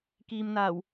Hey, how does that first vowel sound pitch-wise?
low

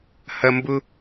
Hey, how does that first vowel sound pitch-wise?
high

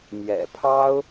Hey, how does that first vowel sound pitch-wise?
low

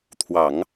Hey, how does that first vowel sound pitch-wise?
low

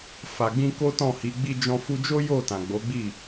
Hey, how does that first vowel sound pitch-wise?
low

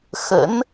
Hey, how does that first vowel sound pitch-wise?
rising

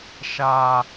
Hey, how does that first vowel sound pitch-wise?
low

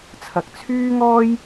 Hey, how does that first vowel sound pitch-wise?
low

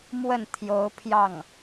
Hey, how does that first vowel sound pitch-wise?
falling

